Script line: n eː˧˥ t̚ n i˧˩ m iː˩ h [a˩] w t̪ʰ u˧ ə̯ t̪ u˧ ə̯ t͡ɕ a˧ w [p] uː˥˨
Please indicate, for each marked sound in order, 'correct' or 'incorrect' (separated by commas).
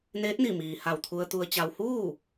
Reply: incorrect, incorrect